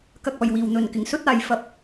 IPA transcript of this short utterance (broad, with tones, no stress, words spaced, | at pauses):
kɐ˨k̚ɔː˨˩j wiː˨˩wn̪ɵ˨˩nkɪ˨˩ŋ sɵ˥t̚aː˨j fɐ˧p̚